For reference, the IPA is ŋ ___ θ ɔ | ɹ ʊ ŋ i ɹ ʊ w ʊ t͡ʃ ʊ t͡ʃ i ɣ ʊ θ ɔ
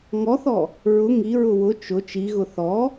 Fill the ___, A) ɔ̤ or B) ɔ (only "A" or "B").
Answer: B